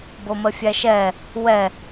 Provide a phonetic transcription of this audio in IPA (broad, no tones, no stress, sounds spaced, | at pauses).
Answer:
b o m ə fʲ æ ʃ ɛ | w ɛ